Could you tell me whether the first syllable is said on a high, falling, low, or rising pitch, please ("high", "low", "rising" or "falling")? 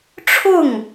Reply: falling